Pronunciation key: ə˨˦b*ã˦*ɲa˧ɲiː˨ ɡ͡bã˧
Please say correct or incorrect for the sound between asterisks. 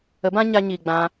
correct